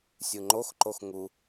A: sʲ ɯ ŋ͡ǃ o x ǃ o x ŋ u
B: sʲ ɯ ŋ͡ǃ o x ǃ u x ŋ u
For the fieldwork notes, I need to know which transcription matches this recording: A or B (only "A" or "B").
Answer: A